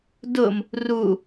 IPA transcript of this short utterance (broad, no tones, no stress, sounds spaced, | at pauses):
d ʊ m | r u